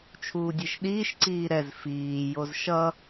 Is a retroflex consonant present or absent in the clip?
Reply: absent